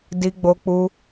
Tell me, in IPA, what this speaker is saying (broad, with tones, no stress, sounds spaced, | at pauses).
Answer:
d i˧ ɡ͡b o˧ k͡p u˧